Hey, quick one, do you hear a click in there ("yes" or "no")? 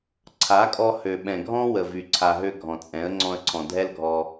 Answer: yes